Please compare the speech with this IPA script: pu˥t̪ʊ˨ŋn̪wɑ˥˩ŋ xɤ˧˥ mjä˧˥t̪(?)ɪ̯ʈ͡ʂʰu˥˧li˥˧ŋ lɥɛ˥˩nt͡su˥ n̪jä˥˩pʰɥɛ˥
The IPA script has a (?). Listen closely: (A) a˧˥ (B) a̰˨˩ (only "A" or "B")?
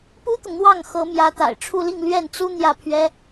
B